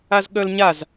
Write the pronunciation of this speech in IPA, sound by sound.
a z ɠ œ l ɲ a z

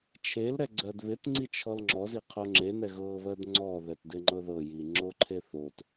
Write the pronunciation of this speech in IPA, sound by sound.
t͡ʃʰ e l ɾ ɛ ɡ͡ǀ ɜ d β ɪ t ŋ͡ǀ i t͡ʃʰ ɔ l ŋ͡ǁ ɔ z i qʰ o ŋ͡ǁ e n ɛ ɣ ɤː β ɜ d ŋ͡ǀ ɔ ð ɛ t d ɪ ŋ͡ǃ ɤ ð ɤ j iː ŋ͡ǁ o ǃʰ e θ o t

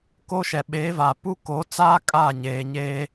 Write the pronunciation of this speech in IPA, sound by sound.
k o˦ ʃ ɛ˨ ɓ eː˨˦ v aː˨ p u˦ k o˨˦ t͡s aː˦ kʼ aː˦˨ ɲ eː˨ ɲ eː˦

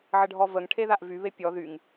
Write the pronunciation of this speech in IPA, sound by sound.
ʕ ə ɖʱ ɔ v ə ŋ ʈʰ e ð a ʔ v y β e pʲ ɔ ð y ŋ

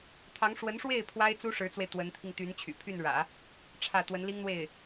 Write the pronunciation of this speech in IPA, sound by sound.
t̪ʰ ɑ˧˥ ŋ ʂ w ə˧˥ n ʂ w e˥˩ ɪ̯ pʰ w a˥ ɪ̯ t͡s u˥ ʂ ɻ̩˧˥ t͡s w e˧ ɪ̯ t̪ w ə˧˥ n t̪ʰ i˧ ŋ t̪ y˧˥ n t͡ɕʰ y̰˨˩ pʰ y˥˩ n ɻ ä̰˨˩˦ | ʈ͡ʂʰ ä˥˩ t̪ w ə˧˥ n l i˥ ŋ n̪ w e˥˩ ɪ̯

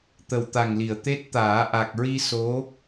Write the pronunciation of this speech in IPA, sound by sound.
t̪ ə˨˩ w t̪ a˨˩ ŋ l i˨˩˨ ə̯ t̪ e˦˥ t̚ t̪ aː˨˩˦ ʔ a˨˩ k̚ ɹ i˧ s o˧˥

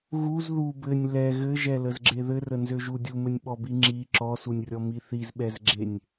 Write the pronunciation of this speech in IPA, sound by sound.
ɣ u z ð u b ɘ nʲ l ɛ ɣ ɘ ʒ ɛ l ə z ɡ͡ǁ e ð ɘ r ə n z ø ʒ u dʲ u m ɘ nʲ ɓ ɔ b i ŋ͡ǁ i ǁ ɔ s u nʲ rʲ ɔ m i θ i z ɓ ɛ z ɡ͡ǁ e nʲ

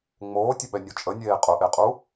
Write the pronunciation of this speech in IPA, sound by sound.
ŋ͡m oː tʲ ə ɓ ɛ nʲ o t͡ʃʼ ə nʲ eː qʼ ʊ ʔ e qʼ u

